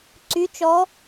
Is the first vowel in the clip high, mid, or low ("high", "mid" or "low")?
high